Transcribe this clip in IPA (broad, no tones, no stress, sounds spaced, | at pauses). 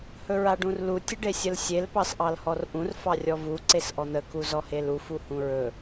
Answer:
h ɵ ɹ a ɖ ũ r l u tʲ ə ɖ e sʲ ə l sʲ e l p ɑ s ʔ ɑ l h ɔ r ʔ ũ r f ɑ rʲ ɔ v u ǀ e s ʔ ɔ n̪ ə k u z ɔ h e l u f u h ũ ɹ ɵ